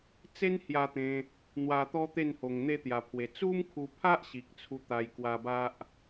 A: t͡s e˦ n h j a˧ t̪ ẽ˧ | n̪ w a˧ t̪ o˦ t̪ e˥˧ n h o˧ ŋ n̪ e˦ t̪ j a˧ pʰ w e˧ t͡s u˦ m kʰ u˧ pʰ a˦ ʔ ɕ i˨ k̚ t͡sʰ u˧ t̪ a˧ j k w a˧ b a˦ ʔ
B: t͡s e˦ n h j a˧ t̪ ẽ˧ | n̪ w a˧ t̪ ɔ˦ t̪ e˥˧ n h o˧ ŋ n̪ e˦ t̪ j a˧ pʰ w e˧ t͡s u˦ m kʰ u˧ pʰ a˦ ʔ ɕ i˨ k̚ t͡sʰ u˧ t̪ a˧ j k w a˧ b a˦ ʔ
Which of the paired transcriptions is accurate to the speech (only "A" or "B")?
B